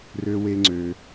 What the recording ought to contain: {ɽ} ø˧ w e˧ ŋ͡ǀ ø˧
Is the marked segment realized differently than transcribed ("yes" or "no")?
yes